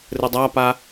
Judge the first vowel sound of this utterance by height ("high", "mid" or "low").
mid